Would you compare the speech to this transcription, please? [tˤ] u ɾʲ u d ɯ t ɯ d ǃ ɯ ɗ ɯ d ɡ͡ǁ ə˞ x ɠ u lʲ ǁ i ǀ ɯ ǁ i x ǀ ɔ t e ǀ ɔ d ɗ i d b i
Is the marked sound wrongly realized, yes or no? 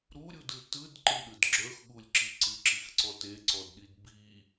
yes